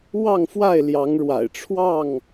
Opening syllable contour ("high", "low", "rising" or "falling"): falling